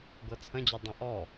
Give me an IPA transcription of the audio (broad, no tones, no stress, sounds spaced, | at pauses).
ɡ ɤ t͡sʰ ə̃ d͡ʑ ø dˤ ĩ ʔ ɔ